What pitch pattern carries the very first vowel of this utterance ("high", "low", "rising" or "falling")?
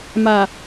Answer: low